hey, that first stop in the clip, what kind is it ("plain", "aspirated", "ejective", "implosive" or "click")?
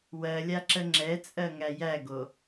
click